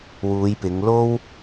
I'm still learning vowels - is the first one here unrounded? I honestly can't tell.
no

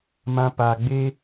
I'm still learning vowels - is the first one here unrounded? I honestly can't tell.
yes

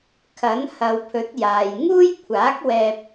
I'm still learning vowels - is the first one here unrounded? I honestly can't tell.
yes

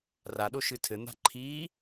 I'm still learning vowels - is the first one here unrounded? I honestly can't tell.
yes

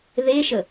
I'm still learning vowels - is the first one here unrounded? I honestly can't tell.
yes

